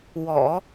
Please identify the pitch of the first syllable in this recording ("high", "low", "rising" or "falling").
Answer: low